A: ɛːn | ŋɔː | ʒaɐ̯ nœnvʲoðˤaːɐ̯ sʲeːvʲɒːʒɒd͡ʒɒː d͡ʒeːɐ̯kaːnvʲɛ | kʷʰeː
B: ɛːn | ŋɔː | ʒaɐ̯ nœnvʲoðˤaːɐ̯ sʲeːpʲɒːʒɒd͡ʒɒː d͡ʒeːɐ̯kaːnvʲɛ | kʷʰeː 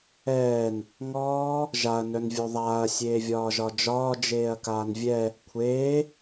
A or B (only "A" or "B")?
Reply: A